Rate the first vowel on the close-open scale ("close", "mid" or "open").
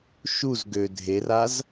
close